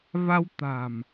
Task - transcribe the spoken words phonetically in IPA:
va˧wt̪a̤˨˩m

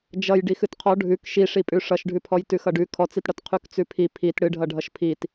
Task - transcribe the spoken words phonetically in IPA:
d͡ʒʌj ɖixɨtqʰɔ ɖʱʉk ʃiʂipʼʉ ʂʌʃɖʱʉpʰɔj tʉxʌɖʉ kʰɔt͡sitɽʌt qʰʉkt͡sʉpʰi pʰit ɽɨɖʱʌ ɖʱʌʃpʰit

